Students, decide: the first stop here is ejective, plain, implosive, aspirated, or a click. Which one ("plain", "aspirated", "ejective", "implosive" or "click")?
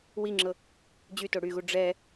click